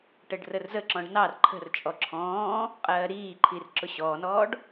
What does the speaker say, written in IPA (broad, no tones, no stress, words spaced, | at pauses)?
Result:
ʈəɖrərzəǁɔ̃ɖ nɑr ǃʰə̤rt͡ʃʼɔ ǁʰɔ̃ː | qʼɜːɾiːǃʰir ǁʊɕɔːnɔːɖ